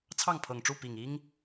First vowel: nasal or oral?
oral